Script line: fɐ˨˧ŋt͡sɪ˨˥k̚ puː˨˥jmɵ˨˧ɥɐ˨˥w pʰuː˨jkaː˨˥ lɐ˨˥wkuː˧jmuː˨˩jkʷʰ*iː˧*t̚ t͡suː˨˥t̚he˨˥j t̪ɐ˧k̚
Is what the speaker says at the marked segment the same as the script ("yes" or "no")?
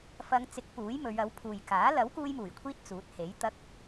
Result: yes